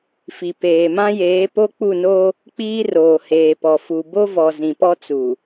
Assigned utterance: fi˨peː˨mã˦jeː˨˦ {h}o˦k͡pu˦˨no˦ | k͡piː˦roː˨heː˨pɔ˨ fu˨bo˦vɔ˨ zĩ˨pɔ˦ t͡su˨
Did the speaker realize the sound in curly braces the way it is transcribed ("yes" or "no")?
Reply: no